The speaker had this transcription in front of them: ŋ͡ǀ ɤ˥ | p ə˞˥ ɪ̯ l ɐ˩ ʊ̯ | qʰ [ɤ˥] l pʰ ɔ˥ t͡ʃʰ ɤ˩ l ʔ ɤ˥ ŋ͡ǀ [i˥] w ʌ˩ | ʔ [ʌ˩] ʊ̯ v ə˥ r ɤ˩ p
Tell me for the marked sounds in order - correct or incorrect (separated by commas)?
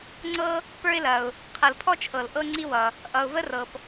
incorrect, correct, correct